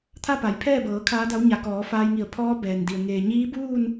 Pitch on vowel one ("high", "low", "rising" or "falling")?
falling